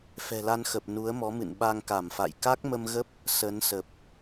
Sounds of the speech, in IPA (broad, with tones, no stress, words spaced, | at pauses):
fɛ̤˨˩la˧nxə˨˩p̚ nu˨˦ə̯mɔ˨˦mɨ̰˧˨n ɓa˧ŋka˧˩mfa̰˧˨j ka˦˥k̚mə˧mɣə˦˥p̚ | sə˨˦nsə˨˩p̚